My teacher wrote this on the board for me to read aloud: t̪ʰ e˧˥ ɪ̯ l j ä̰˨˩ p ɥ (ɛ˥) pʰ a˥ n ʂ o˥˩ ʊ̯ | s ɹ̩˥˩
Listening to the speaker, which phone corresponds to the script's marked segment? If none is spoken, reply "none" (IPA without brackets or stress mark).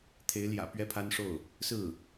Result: ɛ˥